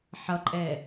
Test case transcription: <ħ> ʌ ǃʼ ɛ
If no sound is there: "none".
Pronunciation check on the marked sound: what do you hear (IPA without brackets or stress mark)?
ħ